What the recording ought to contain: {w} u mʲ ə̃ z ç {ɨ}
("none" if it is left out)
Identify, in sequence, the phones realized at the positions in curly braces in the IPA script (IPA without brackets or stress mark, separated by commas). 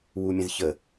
w, ə